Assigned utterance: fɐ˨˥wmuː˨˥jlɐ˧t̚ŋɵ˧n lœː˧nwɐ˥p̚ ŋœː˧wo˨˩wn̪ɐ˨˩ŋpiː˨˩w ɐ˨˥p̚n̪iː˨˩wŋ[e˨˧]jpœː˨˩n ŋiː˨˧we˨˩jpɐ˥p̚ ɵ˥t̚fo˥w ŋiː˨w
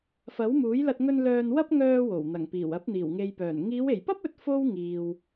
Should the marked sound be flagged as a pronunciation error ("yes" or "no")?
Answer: yes